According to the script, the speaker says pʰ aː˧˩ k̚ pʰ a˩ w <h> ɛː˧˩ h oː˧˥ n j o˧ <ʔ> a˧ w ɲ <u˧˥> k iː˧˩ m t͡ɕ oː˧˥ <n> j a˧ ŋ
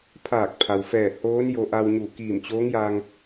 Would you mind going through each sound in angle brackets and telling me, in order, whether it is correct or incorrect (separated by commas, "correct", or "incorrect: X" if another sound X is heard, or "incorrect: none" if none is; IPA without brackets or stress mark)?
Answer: incorrect: f, correct, incorrect: u˧˩, incorrect: ŋ